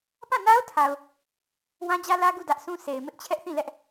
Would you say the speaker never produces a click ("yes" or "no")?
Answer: yes